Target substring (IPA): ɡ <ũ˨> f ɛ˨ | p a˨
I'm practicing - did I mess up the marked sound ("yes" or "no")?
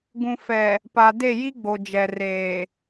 no